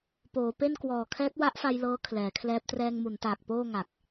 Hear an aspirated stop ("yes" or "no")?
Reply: yes